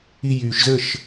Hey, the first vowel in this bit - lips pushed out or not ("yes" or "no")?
no